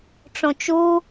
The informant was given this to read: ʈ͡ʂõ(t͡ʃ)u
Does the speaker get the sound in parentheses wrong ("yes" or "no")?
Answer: no